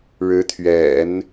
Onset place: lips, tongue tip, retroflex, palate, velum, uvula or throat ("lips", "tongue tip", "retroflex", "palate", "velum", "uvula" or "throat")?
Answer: retroflex